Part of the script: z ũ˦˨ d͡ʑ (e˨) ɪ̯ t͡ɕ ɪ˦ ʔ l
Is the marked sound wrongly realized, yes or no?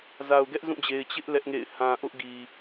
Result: no